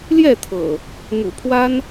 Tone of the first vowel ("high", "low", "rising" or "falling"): falling